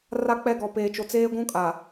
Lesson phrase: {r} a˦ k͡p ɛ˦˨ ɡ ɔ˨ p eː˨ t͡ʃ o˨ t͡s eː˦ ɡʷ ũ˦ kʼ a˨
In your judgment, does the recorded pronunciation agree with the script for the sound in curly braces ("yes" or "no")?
yes